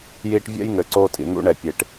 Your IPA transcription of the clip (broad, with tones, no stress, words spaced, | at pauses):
jiː˧ʈ vʲɛ̰˦jŋɘ˨ ǀoː˧tʼḭ˨n̪ṵ˧ ɳɛ˨pʲe˨ʈ